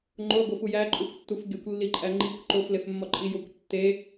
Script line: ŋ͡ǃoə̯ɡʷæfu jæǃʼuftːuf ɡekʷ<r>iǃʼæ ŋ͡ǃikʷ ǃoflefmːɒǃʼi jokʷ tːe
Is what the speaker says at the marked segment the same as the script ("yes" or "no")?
no